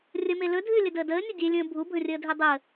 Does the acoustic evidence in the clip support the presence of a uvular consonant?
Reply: no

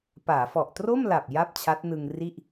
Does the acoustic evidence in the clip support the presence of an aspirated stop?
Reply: yes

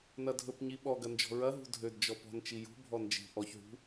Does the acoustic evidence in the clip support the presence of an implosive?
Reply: yes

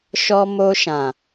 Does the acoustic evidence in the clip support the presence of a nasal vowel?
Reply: yes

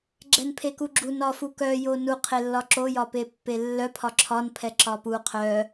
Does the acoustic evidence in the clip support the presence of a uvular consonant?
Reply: yes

